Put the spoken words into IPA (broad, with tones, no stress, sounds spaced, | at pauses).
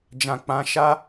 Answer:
d͡ʒ ã˨ k͡p ã˨˦ ʃ a˦